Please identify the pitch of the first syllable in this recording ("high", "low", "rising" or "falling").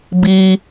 low